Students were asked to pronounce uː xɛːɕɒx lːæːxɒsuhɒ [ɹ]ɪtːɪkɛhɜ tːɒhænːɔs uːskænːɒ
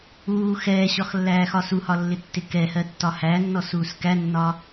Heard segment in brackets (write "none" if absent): lː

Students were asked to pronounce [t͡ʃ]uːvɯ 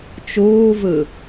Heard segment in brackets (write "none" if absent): t͡ʃ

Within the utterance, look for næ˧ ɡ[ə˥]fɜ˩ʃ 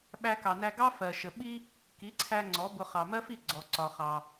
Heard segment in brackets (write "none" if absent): ɑ˥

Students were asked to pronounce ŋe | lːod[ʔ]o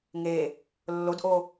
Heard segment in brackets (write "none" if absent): ʔ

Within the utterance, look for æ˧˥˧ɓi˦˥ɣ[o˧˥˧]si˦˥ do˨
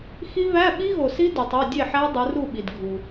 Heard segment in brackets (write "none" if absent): o˨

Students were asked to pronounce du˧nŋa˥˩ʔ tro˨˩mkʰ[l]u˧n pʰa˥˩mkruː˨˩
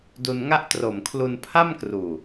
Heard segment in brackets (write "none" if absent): l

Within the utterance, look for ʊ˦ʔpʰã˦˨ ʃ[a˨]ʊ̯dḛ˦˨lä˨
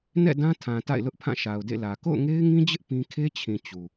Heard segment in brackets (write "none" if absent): a˨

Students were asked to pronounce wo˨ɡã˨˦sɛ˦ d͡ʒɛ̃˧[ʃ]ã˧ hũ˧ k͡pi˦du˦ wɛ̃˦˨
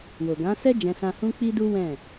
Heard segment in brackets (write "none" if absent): s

